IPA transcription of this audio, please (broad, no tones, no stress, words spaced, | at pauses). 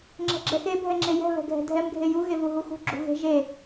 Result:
ŋ͡ǁɛ̤ɡ͡ǁɛxe bʱɛŋ͡ǁejɛ̤ βɛ̤ɡʱɛ̤dʱɛm ɡʱeju ɣevuɦuxṳ ɡ͡ǁṳɣe̤ ʒe